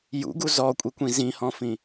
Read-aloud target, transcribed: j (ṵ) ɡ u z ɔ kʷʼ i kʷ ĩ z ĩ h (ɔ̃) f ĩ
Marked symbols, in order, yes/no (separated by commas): yes, yes